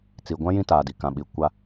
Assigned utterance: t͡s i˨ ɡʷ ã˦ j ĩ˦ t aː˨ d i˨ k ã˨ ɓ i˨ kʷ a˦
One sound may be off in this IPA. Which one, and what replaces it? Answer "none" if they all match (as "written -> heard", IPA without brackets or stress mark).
none